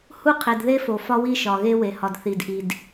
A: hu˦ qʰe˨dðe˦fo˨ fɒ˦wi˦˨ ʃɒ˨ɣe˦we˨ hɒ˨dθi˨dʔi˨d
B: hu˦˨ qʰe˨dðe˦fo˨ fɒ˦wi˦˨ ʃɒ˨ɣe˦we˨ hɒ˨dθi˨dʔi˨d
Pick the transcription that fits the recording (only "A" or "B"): A